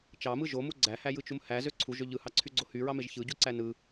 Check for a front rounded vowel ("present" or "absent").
present